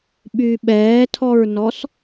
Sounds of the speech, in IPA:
ɓ y ɓ ɛː tʰ ɔ ɹ n ɔ s

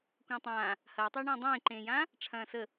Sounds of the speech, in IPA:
kʷ ə̃ː tˤ ãː | h ɐː tˤ ɐː ɳ ɐ̃ː dˤ ẽː ǃ ẽː j ãː | ʈ͡ʂʰ ɐ̃ː s ə

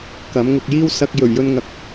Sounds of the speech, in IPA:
k ɐ˨˥ m ŋ ʊ˧ k̚ j iː˥ w s ɐ˧ k̚ j ɵ˨˩ ɥ j ɵ˧ n ŋ ɐ˨˥ k̚

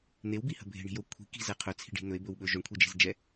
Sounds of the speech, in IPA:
n̪ e w b i h ə̤ bʱ e̤ ɳ i̤ j o kʷʰ i̤ k i̤ z ɛ qʰ ɵ t͡sʰ i̤ ɖ i̤ n̪ ɵ e̯ b ɵ w ɓ ɵ ʒ o ɳ kʷʰ i d͡ʒ e̤ z d͡ʒ ɛ

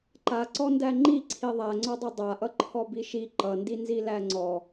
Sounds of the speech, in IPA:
ǃ a ǀ ɔ n d æ ŋ͡ǃ i ǀʰ i ðˤ æ ŋ͡ǀ ɔ dˤ ʌ dˤ a ʔ ʌ ǃʰ ɔ b i ʃ i ǃ ʌ n d i n z i l æ ŋ͡ǀ ɔ

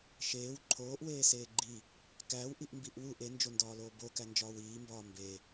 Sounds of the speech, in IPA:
ʃ eː w ǃʰ oː ʔ w eː s eː ɡ͡ǃ i | k æː w ʔ i ʔ m b i ʔ w u ʔ e n d͡ʒ o n d ɒː l oː b o k æ n d͡ʒ ɒː w iː m b ɒː m b e

